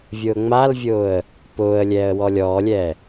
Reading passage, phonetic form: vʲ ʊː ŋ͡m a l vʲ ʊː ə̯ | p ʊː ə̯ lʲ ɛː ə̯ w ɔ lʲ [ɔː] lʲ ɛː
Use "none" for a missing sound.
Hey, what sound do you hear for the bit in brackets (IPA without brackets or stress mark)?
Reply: ɔː